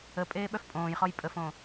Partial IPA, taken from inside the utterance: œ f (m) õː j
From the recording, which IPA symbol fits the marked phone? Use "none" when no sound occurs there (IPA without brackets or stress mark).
pʼ